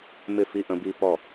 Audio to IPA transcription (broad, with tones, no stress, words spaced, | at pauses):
mɪ˥˩fi˦ ʔə̃˨˦bi˦pɔ˥˩